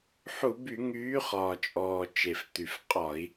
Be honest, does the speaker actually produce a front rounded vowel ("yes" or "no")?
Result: yes